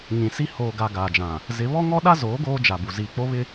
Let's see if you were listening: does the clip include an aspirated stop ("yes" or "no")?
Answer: no